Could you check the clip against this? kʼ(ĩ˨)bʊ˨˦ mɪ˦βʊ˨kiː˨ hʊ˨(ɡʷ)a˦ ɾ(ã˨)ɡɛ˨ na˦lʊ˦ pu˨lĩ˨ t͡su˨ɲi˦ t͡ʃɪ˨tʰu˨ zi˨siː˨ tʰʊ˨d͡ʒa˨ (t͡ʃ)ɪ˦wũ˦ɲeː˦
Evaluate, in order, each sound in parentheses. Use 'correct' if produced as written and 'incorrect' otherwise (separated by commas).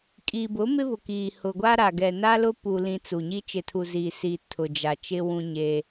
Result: incorrect, correct, incorrect, correct